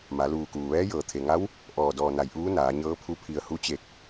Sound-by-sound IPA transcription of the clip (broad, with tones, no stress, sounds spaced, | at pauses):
m a˩˧ l uː˧˩ k uː˩ ʋ ɛː˧˥ j ɤː˧˩ t̪ʰ e˩ ŋ a˧˥ w | ʔ ɔː˧˩ d ɔː˧˩ n a˧˩ j ʔ uː˧˥ n aː˩˧ ɲ ɤː˧˥ pʰ u˧˥ pʰ i˧˩ ə̯ h u˧˥ t͡ɕ e˧˩ k̚